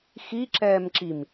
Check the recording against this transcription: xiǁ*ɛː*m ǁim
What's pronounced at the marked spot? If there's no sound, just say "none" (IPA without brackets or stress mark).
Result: ɛː